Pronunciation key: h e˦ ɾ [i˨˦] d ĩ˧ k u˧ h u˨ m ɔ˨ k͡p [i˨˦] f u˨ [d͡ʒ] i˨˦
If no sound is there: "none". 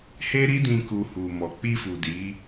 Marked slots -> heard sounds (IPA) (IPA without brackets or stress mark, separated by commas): i˦, i˧, d